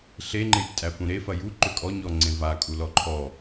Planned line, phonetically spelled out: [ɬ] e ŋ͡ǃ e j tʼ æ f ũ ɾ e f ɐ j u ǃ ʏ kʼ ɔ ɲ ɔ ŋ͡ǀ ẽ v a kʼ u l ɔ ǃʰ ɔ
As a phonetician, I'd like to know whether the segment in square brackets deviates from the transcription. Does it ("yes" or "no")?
no